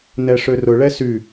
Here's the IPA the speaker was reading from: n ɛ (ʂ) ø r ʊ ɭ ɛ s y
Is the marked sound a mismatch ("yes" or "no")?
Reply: no